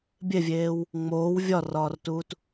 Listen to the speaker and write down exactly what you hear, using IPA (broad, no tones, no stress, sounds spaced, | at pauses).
bʲ e vʲ eː w | ŋ͡m oː w vʲ ɒ r ɒː r t uː t